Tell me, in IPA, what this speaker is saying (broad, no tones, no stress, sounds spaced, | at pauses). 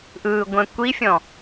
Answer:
ʔ ɯː ɡʷ ɛ̃ kʷ i fʲ ɔ̃